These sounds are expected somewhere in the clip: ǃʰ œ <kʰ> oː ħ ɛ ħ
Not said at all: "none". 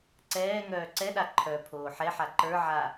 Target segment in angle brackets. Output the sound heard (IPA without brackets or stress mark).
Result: pʰ